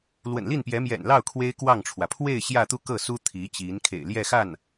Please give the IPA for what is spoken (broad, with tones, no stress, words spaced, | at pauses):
lwə̰˨˩nli˥˩npjɛ˧˥ mjɛ̰˨˩nlɑ˥˩ʊ̯ kʰwe˥ɪ̯kwɑ˥˩ŋʈ͡ʂʰwä˩ pʰwe˥˧ɪ̯ ɕjä˥˧t̪u˥˧kɤ˥˩su˥ t̪ʰi˧˥t͡ɕi˧˥n kʰḛ˨˩ɪ̯ ljɛ˥˧xa˥˩n